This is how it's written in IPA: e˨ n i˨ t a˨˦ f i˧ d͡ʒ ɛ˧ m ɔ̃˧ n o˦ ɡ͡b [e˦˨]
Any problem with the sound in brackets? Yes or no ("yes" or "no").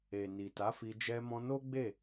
no